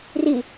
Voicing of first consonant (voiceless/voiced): voiced